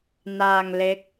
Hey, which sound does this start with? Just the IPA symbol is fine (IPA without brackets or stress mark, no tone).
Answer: n